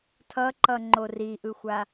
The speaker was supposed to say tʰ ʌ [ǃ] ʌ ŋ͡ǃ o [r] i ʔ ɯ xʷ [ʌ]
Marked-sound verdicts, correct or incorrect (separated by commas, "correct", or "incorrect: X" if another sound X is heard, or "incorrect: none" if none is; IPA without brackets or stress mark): correct, correct, incorrect: a